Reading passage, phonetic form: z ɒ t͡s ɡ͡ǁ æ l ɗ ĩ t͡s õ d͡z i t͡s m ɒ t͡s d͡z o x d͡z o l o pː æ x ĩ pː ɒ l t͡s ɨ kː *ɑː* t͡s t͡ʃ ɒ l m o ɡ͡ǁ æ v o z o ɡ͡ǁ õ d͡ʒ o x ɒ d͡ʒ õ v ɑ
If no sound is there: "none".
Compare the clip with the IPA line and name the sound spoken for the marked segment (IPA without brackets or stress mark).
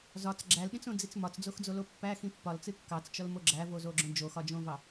ɑ